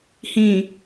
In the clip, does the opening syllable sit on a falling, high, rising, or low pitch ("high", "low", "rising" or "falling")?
low